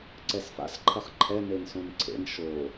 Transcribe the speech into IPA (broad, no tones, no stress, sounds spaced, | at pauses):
ǀ ɛ s f a̰ s ǃʰ ɐ χ ǃʰ ɛ n e n s õ n ǀʰ ḛ n ʃ o